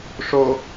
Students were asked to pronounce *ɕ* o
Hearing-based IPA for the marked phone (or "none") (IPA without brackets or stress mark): ʂ